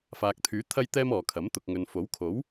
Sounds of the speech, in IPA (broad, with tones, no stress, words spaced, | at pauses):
faː˨k̚t̪ʰyː˨˥ t̪ʰɐ˧jt̪ɛː˧m ɔː˨kʰɐ˨˥m t̪ʊ˨k̚ŋɵ˨n fo˨˥wkʰo˨˥w